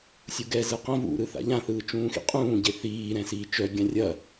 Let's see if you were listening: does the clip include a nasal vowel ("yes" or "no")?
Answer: yes